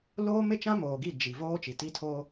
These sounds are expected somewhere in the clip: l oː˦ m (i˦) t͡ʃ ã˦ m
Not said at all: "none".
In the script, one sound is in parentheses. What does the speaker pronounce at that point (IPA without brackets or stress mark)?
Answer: ɪ˦